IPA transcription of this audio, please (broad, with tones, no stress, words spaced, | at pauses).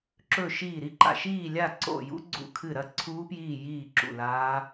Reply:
ǁɵ˦˨ʃiː˦˨ɾi˦˥ǃa̰˦˨ ʃiː˦˨lʲa˦˨ ǀo̰˦˨jṵ˦˥ ɡ͡ǀṵ˦˨kʰɨ˦˨ ɾɐ˦˨ ǀʰuː˦˥pjiː˦˨jiː˦˨ ǁṵ˦˨laː˦˥